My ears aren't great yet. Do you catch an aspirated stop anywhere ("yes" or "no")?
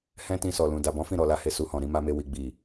no